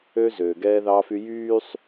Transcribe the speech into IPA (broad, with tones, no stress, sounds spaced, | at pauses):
ø˦ z øː˨ ɡ ɛː˦ ð ɑː˦ f y˦ j yː˦ sˤ